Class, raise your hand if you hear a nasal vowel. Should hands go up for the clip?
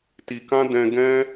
yes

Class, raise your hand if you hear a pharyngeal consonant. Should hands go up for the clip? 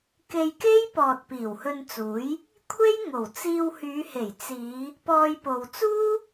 no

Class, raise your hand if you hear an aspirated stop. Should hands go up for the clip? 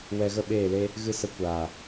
no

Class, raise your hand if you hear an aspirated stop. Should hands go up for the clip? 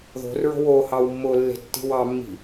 no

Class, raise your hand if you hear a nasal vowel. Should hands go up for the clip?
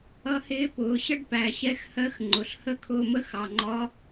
no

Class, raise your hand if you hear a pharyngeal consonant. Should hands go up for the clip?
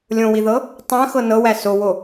no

